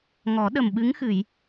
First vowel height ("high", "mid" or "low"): mid